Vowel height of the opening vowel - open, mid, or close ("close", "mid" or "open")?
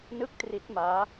close